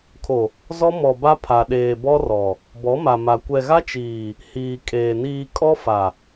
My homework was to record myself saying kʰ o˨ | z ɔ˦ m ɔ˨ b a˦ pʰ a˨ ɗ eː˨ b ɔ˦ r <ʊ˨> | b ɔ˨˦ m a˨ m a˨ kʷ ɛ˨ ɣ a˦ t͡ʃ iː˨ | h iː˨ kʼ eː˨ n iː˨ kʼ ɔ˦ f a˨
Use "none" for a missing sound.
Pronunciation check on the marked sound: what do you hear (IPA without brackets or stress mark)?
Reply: ɔ˨